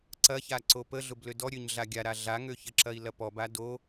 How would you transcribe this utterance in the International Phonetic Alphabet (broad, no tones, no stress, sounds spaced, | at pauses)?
ǀ ɐ ç a ǀ o p ə ɮ ʊ b l ø d ɔ ɾʲ ø ɲ ɮ a ɡʲ a ɾ a ɮ a ŋ ø ç ə ǁ ɐ i̯ l ɐ p ɔ b a d o